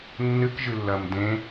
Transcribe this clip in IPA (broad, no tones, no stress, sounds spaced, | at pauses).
nː ɨ k ʒ ɨ lː ɐː m d ẽ